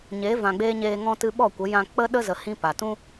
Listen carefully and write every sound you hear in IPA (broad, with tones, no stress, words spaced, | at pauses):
ɲeː˨˦vã˨ɡ͡beː˧ ɲeː˧ ŋɔ̃˦tɨ˦ ɓɔ˦˨kʷə˨˦ jã˧k͡pə˦ɗə˦ zə˧hĩ˦pa˨ tũ˧